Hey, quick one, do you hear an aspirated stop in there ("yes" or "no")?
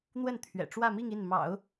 yes